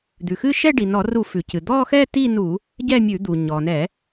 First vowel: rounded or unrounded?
rounded